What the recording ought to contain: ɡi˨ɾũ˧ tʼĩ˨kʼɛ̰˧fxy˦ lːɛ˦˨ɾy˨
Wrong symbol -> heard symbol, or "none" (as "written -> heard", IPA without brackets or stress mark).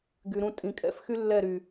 i˨ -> y˨